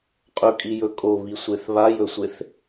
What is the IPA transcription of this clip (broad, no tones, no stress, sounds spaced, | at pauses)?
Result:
qʼ ɵ kʼ i j ɵ kʼ o β i sʷ e θ β a j ɵ sʷ e θ